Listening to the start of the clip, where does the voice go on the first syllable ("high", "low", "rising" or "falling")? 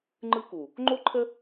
high